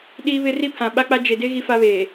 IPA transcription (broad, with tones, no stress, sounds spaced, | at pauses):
ɗ iː˦ β ɪ˦ r i˦ pʰ ã˨ ɓ a˦ k͡p a˦ d͡ʒ e˨ d e˦ ɣ i˦ f a˦ β eː˨